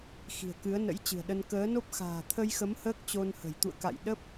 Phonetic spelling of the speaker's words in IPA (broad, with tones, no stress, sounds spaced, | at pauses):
x i̤˨˩ ə̯ k ɨ˨˦ ə̯ n ə̰˧˥ j t͡ɕ ɨ̤˨˩ ə̯ ɗ ə˧ n k əː˨˦ n o˦˥ p̚ x a̤ː˨˩ t̪ʰ ə˧ j x ə˨˦ m h əː˦˥ k̚ t͡ɕ o˧ n h ə̤˨˩ j t̪ ṵ˧˨ ə̯ k a̰˧˨ j ɗ ə˦˥ p̚